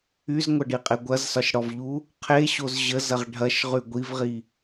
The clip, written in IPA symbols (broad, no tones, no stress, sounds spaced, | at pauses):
y z ŋʷ ɐ ɖ i qʼ e ɡʷ ɐ z s ɒ ʃ ɽ ɔ v ʎ u | qʰ e ɕ o z ʑ ə z ɐ ʁ ɖʱ ɐ ʃ ʁ y ɡʷ i v ʁ i